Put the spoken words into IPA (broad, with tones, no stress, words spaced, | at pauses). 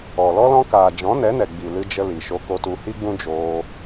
ɔ˨ lɔ˧ lɔ̃˧ kaː˨ d͡ʒɔ̃˨˦nɛ˨˦nɛ˨ ɡ͡bi˨ lɨ˧d͡ʒə˧ li˨ʃo˧ ko˧tu˧hi˦ɡ͡bũ˦ d͡ʒoː˧